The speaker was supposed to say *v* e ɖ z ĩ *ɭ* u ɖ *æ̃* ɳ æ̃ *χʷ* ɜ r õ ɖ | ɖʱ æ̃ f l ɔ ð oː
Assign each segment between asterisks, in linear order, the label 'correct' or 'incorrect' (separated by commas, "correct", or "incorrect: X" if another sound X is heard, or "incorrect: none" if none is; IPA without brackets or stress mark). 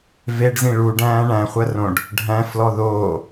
correct, correct, incorrect: æ̃ː, correct